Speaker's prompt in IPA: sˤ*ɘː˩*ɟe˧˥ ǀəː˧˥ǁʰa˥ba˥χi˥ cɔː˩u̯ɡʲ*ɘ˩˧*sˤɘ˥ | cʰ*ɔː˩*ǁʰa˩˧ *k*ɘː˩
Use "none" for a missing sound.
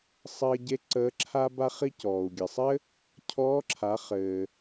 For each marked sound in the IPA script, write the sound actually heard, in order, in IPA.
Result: ɘː˧, ɘ˩, ɔː˧˥, χ

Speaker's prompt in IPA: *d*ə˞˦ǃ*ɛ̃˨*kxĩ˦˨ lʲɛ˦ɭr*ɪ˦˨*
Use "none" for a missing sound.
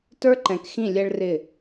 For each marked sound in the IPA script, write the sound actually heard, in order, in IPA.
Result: t, ɛ̃˨, ɪ˦˨

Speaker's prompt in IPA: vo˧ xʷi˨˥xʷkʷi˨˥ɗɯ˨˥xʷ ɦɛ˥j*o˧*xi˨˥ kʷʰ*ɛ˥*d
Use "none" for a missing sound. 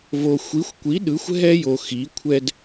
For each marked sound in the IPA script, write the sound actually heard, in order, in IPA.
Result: o˧, ɛ˥

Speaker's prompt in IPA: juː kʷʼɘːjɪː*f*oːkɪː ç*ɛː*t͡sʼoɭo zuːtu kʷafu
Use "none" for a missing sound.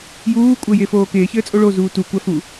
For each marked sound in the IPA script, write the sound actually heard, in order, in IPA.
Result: f, ɘː

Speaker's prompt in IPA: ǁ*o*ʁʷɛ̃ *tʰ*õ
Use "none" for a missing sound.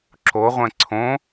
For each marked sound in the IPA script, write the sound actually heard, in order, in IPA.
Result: o, ǀʰ

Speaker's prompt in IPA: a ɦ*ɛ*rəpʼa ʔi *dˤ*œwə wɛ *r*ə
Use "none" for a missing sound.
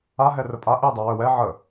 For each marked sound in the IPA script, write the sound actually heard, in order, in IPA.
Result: ɛ, dˤ, ʕ

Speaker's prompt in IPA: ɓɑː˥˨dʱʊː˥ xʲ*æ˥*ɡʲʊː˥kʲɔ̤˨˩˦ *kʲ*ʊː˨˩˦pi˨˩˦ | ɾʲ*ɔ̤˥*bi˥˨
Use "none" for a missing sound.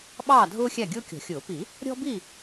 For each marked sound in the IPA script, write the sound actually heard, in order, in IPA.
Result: æ˥˨, xʲ, ɔ̤˥

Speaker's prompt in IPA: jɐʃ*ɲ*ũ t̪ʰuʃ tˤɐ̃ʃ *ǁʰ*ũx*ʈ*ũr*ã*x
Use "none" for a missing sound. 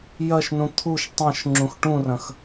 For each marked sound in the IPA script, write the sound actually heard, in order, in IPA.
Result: n, ŋ͡ǁ, ʈ, ɐ̃

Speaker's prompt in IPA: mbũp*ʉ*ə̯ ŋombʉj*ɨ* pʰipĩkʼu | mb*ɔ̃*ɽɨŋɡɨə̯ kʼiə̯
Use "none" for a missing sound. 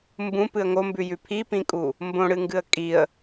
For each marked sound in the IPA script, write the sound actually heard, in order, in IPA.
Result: ɨ, ʉ, õ

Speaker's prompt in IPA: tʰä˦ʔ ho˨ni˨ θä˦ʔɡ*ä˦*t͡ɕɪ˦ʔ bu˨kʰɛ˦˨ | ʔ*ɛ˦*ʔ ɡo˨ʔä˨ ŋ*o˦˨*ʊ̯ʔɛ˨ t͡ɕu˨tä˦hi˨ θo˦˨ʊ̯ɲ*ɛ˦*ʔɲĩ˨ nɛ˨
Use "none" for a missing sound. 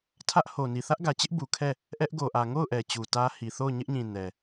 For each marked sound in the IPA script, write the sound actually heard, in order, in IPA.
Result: ä˨, ɛ˦, o˦˨, ɪ˦

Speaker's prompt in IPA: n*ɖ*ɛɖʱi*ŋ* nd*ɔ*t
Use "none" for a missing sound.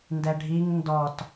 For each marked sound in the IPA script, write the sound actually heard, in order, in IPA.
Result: d, ŋ, ɔ

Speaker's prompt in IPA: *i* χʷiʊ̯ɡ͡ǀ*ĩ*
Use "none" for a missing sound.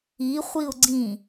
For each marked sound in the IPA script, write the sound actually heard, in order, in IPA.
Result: i, ĩ

